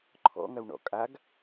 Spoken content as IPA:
ǃʰ ɔ̰ ŋ ɐ w ɳ ɔ̰ kʼ a ɡ

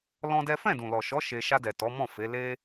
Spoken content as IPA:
l ɔ̃˦ d ɛ˦ f ɛ̃˦˨ d ũ˨ l ɔ˨ ʃ ɔ˨˦ ʃ e˧ ʃ a˧ d ɛ˨ t ɔ˨˦ m ɔ̃˦˨ f e˨˦ l e˦

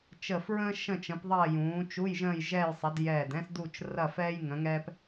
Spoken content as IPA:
t͡ʃ ə˧˩ f ɹ ə̃ː˥ ʃ ə̃˥˧ t͡ʃ ə̃˨˥ p ðˤ ɐː˥˧ j ũː˨˥ t͡ʃ u˧˥˧ j ʒ ə̃ː˥˧ j ʒ ɛ˥˧ j sˤ ɐ˨˥ d j ɛː˧˩ d ɛ̃˥ s d u˥˧ t͡ʃ r ɐ˥˧ f ɛː˥ j ŋ ə̃˨˥ ŋ ɛː˥ p

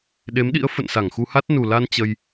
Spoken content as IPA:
ɗ e˨˦ m ɗ ḭ˧˥ ə̯ f ə̰˧˨ n s a˧˩ ŋ x u˧ h a˦˥ t̚ n u˨˩ l a˧ n t͡ɕ ə˧ j

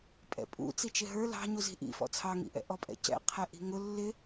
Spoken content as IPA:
pʼ ɛ̰ pʼ ṵ t͡s i t͡ʃ ɪ ɦ ə˞ l ɑ̤ ɲ u z i̤ ʔ ḭ f ɔ̰ t͡sʰ ɑ ŋ ḭ ʔ ɛ̰ ʔ ɔ pʼ ɛ̰ c ɛ̰ qʰ ɛ ʔ i̤ ŋ ʊ lː ɪ

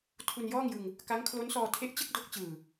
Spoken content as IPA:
tʰ u˧ n j ɔː˥˩ ŋ j ɯ˧ ŋ | k a˦˥ ŋ kʰ l o˦˥ n s ɔː˧ tʰ e˦˥ ʔ t͡ɕ ɯ˥˩ k̚ d o˦˥ k̚ t͡ɕ ɯː˨˩

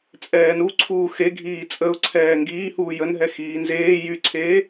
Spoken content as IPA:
t͡sʼ ɛː n u ǀʰ uː x e ɡʱ iː t͡sʼ ə ʊ̯ ǀʰ ɛː ŋ ɡ iː h uː j ə n ɦ ɛ x iː n z eː j y ǀʰ eː

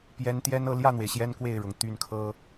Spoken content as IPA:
p j ɛ˧˥ n t̪ j ɛ˥ n ɤ˥˧ l j ä˥˩ n̪ w e˩ ɪ̯ ɕ j ɛ˥ n k w e˥˩ ɪ̯ ɻ ʊ˩ ŋ t̪ y˥˩ n kʰ ɤ˥

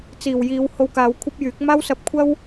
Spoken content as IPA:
t͡s iː˨˩ w j iː˨˧ w h o˧ w k aː˨˧ w kʷʰ ɐ˥ p̚ j yː˨˥ k̚ m aː˥ w s ɐ˧ p̚ kʷʰ ɐ˥ w

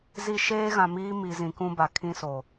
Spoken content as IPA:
z i˦ ʃ eː˦ ɣ ã˨ m iː˦ m i˨ z ĩ˨ k ũ˦ b a˨ kʰ ĩ˦ s o˨

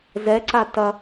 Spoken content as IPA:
z ɛ ǀ a t ɐ

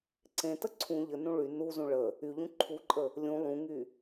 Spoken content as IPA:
ǀ ẽ t ə ǀʰ ũ ʎ ə n ũ ɭ y n u z ũ ɭ ə | y ʎ ũ ǃʰ u ǃʼ ə | lʲ ũ lˠ ũ ŋ y

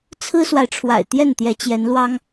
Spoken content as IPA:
t͡sʰ ɹ̩˥ s w a˨ ɪ̯ ʈ͡ʂʰ w a̰˨˩ ɪ̯ t̪ j ɛ˥˩ n t̪ j ɛ˧˥ t͡ɕ j ɛ˧˥ n l w ɑ˥ ŋ

